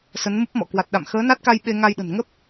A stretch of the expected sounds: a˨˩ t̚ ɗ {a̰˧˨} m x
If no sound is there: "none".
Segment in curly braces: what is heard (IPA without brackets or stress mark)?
a̰˧˨